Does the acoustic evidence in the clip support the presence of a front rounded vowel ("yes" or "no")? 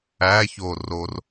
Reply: no